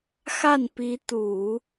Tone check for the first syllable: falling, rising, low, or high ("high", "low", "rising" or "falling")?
falling